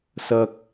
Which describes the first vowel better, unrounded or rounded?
unrounded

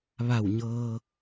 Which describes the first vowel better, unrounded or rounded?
unrounded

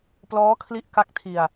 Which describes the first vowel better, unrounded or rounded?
rounded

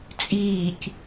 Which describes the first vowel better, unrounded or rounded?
unrounded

